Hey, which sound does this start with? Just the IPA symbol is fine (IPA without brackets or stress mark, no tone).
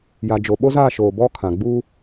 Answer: j